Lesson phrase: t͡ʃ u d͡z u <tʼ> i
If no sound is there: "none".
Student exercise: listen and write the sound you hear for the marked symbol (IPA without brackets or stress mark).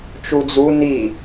n